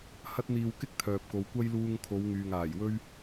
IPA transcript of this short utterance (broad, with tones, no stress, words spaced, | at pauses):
hɐ˥t̚ n̪iː˧wkɪ˥k̚ t̪ʰœː˨p̚ko˨˧w kʷɐ˥j luː˧ŋkʰo˨˧w ŋyː˨ŋaː˨˩jwɵ˥ɥ